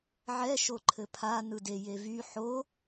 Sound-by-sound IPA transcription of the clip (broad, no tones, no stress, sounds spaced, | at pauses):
ʕ ɛ ʃ o ǃʰ ɘ pʰ a n ɯ d e j e v y ħ o